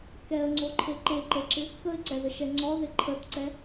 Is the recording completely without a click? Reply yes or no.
no